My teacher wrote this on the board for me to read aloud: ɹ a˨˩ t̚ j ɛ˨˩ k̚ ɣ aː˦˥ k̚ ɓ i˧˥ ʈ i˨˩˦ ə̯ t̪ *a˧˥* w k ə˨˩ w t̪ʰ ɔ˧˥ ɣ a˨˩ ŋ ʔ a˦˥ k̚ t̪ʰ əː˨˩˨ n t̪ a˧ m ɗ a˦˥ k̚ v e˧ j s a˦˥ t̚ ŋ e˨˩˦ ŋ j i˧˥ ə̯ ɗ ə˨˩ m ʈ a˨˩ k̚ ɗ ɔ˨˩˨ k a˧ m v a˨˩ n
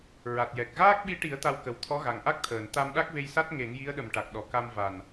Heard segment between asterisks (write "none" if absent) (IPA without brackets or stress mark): a˧